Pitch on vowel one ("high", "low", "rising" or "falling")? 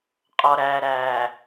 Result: low